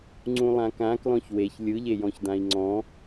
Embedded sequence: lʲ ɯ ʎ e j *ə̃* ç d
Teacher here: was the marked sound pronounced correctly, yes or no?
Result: no